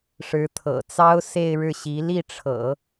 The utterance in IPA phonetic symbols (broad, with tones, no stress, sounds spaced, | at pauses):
ʂ ɻ̩˧˥ t̪ʰ ɤ̰˨˩ t͡s ɑ˥ ʊ̯ s e˥˧ ɪ̯ ɻ ɻ̩˥˩ ɕ i˧˥ l i˥˩ ʈ͡ʂʰ ɤ̰˨˩˦